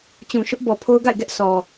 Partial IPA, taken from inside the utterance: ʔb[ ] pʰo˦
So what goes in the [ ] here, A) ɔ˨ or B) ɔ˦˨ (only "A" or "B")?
A